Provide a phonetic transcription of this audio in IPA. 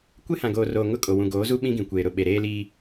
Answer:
kʷ e˦ h ã˨ ɡ oː˨ r oː˨ ŋ ʊ˦ kʼ o˨ w ũ˨ ɡ oː˨˦ z u˦ ɓ ĩ˦ ɡ ĩ˨ kʷ eː˨ ɾ ʊ˨ ɓ e˨ ɾ eː˦ l iː˦

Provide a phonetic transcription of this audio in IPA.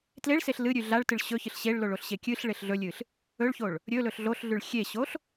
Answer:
t l e ɭ s e ɬ l ɨ ɾʲ ʉ ɮ a ɭ t ɨ ɭ ɕ ɵ ç ɨ ɬ ɕ e ɭ l o ɭ o ɬ ɕ e kʲ ɨ ɬ ɭ e ɬ ɮ ɵ lʲ ɨ ɬ | ɵ ɭ ç o ɭ | ɾʲ ɵ l ɵ ɬ ɮ o ɬ ɮ ʉ ɭ xʲ e ɕ o ɬ

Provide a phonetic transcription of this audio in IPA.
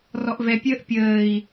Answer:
r ɔ ʔ v ɛ pʲ əː ʔ pʲ əː i̯

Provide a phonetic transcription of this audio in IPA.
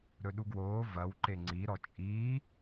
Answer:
ɾ ɵ ɗ u ɡ w oː v ɐ w ǃ e ŋ͡ǀ i ɾ ɔ t͡ʃʼ iː

